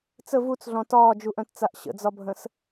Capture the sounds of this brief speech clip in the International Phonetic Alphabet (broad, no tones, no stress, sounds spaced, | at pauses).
t͡s ə v u t͡s ɮ ɔ̃ t ɒː d͡ʒ u ʔ œ̃ t t͡s a ʔ ɕ ə̰ d͡z ɒ bʱ ə̃ s